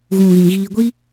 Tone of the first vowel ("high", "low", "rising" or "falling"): low